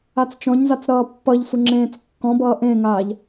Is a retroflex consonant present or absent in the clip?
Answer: absent